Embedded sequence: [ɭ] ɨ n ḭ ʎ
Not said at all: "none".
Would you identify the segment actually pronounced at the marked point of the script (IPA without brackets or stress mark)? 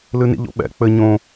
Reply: l